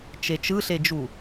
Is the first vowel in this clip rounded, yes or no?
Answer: no